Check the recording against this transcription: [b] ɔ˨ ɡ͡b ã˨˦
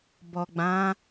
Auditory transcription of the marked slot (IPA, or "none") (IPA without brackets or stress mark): b